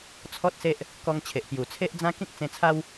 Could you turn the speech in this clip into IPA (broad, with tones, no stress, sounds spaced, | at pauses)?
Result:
t͡sʰ ɔ˦ t̚ s e˦ ʔ | k ɔ˧ ŋ t͡ɕʰ e˨ ʔ p j u˨˩ t͡sʰ e˦ ʔ d͡z ã˦ k ĩ˦ k̚ t͡s ẽ˧ t͡sʰ a˦ w